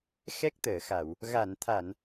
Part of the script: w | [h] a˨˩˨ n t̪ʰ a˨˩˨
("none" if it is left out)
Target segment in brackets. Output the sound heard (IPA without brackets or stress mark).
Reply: ɣ